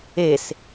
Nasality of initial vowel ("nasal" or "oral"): oral